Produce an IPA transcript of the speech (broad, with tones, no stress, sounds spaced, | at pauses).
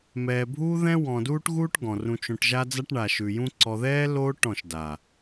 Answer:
m ɛː˨ bʱ uː˦ ð ɛ̃˦ w ɔ̃˨ d uː˦ ʈ ɣ uː˦ ʈ ɡ ɔ̃˨ r ũ˧ t͡ʃ õ˧ ʈ ʒ a˦ d͡z a˦ ʈ ɳ a˨ ʃ ʉ˨ j ũ˦ ǀ ɔ˧ ð ɛː˦ l oː˦ ʈ ɔ̃˦˨ ʃ d a˨